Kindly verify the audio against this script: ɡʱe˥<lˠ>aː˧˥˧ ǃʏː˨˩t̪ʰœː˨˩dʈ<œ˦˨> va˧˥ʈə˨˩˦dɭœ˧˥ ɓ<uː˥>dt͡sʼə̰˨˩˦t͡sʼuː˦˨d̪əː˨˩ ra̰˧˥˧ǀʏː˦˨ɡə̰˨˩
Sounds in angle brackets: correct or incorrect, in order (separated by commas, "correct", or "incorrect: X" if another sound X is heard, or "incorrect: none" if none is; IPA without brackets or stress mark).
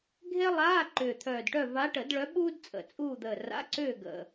correct, correct, correct